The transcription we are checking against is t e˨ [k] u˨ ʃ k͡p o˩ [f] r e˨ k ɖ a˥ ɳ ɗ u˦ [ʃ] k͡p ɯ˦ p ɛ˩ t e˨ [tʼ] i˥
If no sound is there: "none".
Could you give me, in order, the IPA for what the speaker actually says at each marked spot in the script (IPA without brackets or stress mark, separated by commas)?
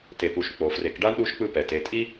p, f, ʃ, tʼ